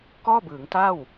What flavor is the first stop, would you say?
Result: plain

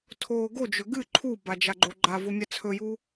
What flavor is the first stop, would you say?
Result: aspirated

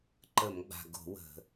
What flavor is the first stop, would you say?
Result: click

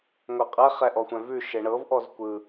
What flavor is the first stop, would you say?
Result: ejective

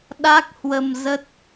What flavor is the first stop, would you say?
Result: implosive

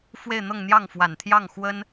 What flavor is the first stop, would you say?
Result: aspirated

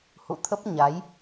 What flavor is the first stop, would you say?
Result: aspirated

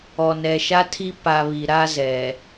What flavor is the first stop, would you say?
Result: aspirated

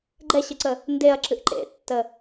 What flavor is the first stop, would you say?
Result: click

